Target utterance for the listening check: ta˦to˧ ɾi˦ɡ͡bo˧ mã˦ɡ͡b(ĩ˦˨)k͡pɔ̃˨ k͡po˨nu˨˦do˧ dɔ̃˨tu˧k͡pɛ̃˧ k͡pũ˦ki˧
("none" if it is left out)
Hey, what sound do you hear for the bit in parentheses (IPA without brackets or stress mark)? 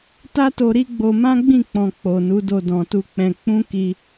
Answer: ĩ˦˨